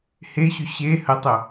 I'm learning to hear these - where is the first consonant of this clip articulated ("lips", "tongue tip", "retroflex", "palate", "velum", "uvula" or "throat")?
throat